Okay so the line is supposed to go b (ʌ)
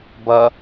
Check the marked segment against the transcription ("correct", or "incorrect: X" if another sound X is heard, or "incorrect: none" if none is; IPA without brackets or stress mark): correct